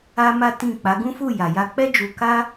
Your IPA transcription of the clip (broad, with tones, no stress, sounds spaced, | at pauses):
a˦ m a˦ t ĩ˦˨ k͡p a˨˦ ɡ ũ˦ f u˦˨ j a˨ j a˧ k͡p ɛ˦ d͡ʒ u˧ k a˦